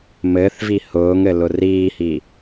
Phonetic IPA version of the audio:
m ɘ θ v i h ʊː ŋ ɘ l ʊ r iː h i

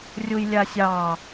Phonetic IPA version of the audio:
rʲ u j lʲ a sʲ ɑ

